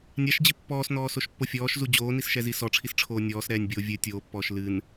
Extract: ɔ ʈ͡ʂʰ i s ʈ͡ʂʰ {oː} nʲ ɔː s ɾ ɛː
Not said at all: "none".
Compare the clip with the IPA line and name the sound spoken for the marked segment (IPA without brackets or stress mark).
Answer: oː